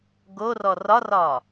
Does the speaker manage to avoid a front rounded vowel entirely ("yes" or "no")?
yes